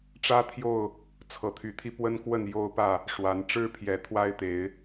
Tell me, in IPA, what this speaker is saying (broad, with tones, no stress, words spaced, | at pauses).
ʈ͡ʂä˦t̪ʰjo˥˨ʊ̯ | t͡sʰɤ˨˦t̪ʰy˨˦t̪ʰi˦ pwə˦nkwə˥˨njo˦ʊ̯pä˥˨ | ʂwa˨˦n ʈ͡ʂɻ̩˥˨pʰjɛ˨˩t̪ʰwa˦ɪ̯t̪e˨˦ɪ̯